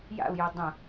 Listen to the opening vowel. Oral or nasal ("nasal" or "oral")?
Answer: oral